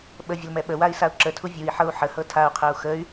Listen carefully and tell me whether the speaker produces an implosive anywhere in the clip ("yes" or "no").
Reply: yes